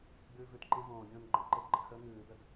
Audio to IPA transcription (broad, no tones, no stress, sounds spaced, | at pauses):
ɡ͡b ʉː v ʉ t ǃ ẽ v õː ɡʲ õː n ɡ͡ǃ ə̃ ǃ e ɡ͡ǃ ə̰ x əː ŋ ʉː d ə d